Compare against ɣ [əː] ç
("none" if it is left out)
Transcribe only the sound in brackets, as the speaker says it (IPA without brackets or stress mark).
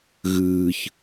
ɨː